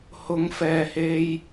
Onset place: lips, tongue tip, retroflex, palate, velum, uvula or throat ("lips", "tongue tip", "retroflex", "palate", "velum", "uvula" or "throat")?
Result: throat